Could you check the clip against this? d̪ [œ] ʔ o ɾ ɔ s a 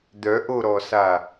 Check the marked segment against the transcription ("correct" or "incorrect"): correct